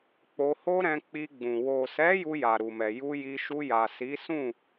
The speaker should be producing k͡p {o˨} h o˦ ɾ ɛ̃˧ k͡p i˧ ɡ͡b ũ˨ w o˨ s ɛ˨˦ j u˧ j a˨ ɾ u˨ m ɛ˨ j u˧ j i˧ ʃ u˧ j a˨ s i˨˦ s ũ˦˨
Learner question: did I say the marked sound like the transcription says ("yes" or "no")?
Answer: no